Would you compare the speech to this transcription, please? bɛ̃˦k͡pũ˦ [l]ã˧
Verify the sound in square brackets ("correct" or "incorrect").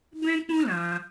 correct